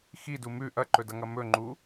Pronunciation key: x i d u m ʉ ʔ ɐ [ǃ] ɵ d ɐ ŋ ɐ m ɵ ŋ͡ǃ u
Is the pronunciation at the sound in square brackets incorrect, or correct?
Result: correct